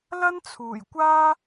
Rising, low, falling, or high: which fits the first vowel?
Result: high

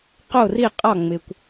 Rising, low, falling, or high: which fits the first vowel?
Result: falling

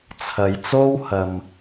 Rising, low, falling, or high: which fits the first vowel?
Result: low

